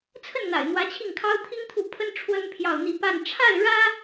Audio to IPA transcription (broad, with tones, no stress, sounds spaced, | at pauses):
t͡sʰ ə˥˩ n n̪ a̰˨˩ ɪ̯ n̪ w ä˧˥ t͡ɕʰ i˥˩ ŋ kʰ ɑ˥ ʊ̯ t̪ʰ i˥ ŋ t̪ʰ u˥˩ pʰ ə˥ n ʈ͡ʂʰ w ə˥ n pʰ j ɑ˥˧ ʊ̯ n̪ i˥˧ p a˥˧ n ʈ͡ʂʰ a˥˩ ɪ̯ ɻ ä˥